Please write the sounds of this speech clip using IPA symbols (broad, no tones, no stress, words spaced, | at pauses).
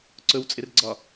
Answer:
ǀɵwt͡sʼɪrɡ͡ǀɒ